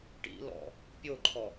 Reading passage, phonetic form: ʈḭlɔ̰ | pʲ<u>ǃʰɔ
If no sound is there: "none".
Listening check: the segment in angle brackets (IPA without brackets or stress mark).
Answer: o